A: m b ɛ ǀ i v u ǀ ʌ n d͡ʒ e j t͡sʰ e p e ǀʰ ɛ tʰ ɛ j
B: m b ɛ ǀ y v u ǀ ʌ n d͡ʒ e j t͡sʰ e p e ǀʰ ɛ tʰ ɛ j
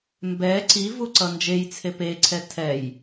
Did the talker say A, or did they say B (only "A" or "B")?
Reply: A